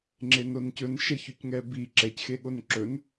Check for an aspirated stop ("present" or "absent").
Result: absent